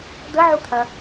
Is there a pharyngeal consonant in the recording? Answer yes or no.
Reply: yes